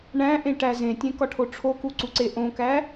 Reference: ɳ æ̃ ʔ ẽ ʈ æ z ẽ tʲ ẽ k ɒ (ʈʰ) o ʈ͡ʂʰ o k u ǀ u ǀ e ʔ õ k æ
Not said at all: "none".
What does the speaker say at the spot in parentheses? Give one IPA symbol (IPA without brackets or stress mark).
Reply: ʈʰ